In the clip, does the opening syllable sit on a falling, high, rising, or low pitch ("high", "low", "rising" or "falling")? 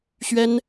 high